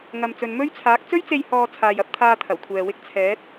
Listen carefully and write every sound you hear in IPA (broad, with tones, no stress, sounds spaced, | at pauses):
ŋ ɐ˨ m t͡s ɵ˨ n m ɵ˥ ɥ t͡sʰ aː˨˥ k̚ t͡s ɵ˥ ɥ t͡s e˧ j h ɔː˧ t͡sʰ aː˨ j ɐ˨˥ p̚ t̪ʰ aː˧ t̪ʰ ɐ˨˩ w kʷʰ ɛː˨ w ɪ˥ k̚ t͡sʰ ɛː˨˥ t̚